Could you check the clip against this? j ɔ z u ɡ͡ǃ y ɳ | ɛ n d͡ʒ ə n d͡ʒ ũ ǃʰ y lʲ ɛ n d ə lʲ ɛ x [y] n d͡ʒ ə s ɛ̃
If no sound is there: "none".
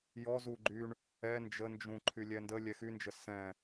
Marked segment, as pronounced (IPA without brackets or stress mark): y